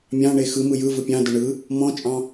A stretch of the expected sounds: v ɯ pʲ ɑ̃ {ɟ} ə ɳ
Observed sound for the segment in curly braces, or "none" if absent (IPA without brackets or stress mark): d